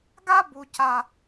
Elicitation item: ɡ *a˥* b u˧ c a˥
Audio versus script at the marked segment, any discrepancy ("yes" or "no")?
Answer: no